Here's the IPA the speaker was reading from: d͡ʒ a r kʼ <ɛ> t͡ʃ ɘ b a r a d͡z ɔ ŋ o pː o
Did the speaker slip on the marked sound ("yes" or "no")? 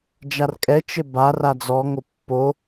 no